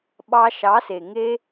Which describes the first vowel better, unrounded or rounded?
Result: unrounded